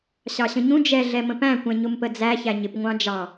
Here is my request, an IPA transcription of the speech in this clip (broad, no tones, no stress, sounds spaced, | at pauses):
ɕ ɑ ɕ ə̃ ɲ ũ d͡ʒ ɛ ɮ ɛ m ə̃ p æ̃ kʷ ɛ̃ ɲ ʊ m p ə d͡z æ ç æ ɲ ɪ p ŋʷ ɑ̃ d͡ʒ ɑ